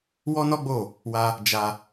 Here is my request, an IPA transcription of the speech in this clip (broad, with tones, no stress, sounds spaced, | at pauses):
w ɔ˦ n ɔ˦ ɡ͡b o˦˨ | w a˧ | d͡ʒ a˧